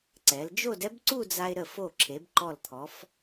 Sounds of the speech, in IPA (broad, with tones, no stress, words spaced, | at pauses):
ǀɛ˩˧ld͡ʒo˥˧d ɛ˥bǀu˥˧d͡za˧ɪ̯ ɾə˧˩fo˧˩ ǁʰe˩˧bǃɔ˧˩lt̪ʰɔ˩˧f